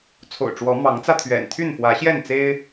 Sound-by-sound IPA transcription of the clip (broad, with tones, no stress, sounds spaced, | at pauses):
t͡sʰ o̰˨˩ ʊ̯ ʈ͡ʂ w ɔ˨˦ m ɑ˨˦ ŋ t͡s ä˧ t̪ʰ ɥ ɛ̰˨˩ n t̪ʰ y˥˨ n f w ä˨˦ ɕ j ɛ˥˨ n t͡s e˦ ɪ̯